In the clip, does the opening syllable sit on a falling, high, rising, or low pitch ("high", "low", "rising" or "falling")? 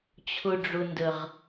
low